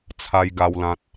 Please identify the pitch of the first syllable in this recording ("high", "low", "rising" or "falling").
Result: high